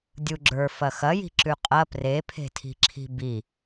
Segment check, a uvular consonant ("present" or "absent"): present